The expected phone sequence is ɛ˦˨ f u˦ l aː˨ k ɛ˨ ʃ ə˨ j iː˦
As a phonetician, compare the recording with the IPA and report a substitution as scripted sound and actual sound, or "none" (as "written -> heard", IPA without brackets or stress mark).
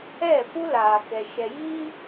ə˨ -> ɛ˨